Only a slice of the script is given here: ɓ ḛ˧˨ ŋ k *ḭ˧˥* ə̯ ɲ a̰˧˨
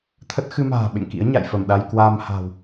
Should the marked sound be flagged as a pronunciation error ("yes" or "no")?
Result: no